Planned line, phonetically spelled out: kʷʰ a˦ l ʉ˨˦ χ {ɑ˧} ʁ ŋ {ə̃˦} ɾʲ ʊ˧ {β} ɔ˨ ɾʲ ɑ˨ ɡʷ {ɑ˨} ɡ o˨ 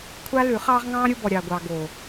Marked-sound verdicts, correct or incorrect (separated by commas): incorrect, incorrect, incorrect, correct